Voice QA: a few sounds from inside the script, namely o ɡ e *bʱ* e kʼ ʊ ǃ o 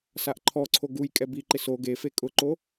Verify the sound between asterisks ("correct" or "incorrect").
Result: incorrect